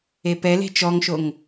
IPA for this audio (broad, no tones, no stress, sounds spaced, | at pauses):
e p ɛ l e̤ t͡ʃ ɔ ŋ ʃ o ŋ